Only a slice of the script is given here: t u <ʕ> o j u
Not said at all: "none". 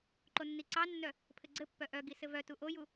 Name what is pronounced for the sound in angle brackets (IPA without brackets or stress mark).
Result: ʔ